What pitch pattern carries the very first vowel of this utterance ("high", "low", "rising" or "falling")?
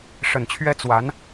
low